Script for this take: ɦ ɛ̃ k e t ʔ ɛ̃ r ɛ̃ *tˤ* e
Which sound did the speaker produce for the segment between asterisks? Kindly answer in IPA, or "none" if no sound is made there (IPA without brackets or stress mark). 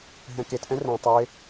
tˤ